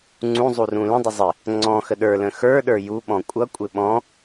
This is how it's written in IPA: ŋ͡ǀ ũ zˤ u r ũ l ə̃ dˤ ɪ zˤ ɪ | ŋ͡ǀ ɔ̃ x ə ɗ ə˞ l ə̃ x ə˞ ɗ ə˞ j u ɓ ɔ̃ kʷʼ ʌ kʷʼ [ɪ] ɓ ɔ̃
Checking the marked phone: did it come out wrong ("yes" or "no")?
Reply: no